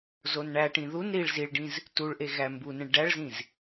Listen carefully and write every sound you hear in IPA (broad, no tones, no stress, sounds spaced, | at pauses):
z o n ɳ æ ʈ ĩ ð u n ɾ i ɭ z i ɭ ɖ ĩ z | t u ɭ ʔ e ɣ æ m b u n ẽ ɭ ɖ æ ɭ z ĩ z